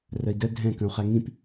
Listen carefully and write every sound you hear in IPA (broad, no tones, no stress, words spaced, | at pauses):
rəi̯də dʱɛ̃ kə̃u̯χæŋĩp